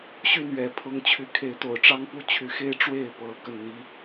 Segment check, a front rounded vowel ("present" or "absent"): present